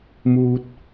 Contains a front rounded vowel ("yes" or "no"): no